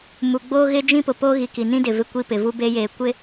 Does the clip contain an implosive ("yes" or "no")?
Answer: no